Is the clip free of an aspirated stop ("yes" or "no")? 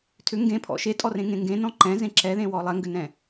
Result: no